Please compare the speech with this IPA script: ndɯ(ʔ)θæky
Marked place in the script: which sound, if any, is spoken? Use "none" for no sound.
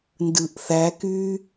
ʔ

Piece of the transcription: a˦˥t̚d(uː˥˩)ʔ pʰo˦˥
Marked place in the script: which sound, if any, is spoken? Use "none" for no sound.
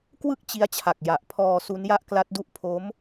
u˥˩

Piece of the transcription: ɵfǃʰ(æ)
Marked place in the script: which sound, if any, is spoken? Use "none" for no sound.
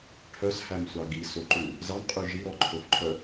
œ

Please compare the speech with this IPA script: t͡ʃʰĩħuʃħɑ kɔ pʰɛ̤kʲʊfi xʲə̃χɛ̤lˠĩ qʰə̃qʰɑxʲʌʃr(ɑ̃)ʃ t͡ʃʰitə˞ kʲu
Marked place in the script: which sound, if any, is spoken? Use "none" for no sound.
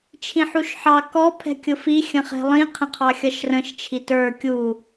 ə̃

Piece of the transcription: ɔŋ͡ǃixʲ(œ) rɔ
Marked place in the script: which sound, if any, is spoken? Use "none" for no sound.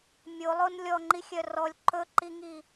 œ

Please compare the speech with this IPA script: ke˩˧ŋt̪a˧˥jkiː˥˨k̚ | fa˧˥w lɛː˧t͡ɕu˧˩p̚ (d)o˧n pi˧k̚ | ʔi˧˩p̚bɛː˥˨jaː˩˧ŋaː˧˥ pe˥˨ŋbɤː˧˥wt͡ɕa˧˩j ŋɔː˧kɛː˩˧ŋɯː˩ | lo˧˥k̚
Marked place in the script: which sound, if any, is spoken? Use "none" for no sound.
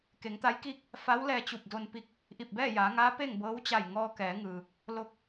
d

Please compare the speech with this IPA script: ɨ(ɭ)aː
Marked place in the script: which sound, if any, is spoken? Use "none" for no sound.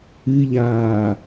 ʎ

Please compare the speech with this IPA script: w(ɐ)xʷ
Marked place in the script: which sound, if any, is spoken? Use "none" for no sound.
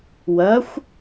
ɐ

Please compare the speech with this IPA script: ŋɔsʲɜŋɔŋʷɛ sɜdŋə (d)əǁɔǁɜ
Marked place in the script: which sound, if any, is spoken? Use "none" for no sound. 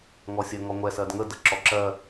d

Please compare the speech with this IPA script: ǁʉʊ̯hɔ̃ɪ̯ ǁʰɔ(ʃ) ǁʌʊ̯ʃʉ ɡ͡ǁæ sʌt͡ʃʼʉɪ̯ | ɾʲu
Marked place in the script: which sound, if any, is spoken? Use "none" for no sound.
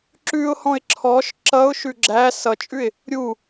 ʃ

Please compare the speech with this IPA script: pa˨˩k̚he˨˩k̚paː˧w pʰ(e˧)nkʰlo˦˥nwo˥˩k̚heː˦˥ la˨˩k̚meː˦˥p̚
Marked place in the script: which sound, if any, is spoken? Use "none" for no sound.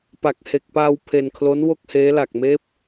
e˧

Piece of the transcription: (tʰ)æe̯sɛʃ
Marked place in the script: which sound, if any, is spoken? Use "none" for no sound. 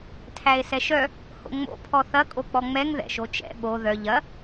tʰ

